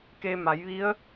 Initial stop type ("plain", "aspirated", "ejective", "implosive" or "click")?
plain